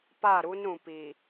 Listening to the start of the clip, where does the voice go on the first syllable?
falling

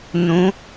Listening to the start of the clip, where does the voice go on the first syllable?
rising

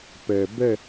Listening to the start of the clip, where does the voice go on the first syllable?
low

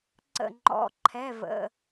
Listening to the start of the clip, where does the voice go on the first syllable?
falling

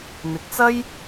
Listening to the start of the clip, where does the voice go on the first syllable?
low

